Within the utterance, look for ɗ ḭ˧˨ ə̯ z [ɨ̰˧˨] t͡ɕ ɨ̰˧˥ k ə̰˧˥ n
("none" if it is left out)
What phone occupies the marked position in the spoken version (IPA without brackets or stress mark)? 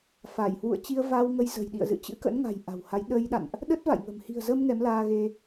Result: ɨ̰˧˨